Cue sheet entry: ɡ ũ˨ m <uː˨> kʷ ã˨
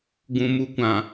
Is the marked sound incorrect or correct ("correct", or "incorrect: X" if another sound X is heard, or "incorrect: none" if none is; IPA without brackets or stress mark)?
incorrect: u˨